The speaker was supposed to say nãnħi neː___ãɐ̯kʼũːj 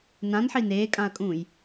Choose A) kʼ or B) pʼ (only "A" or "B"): A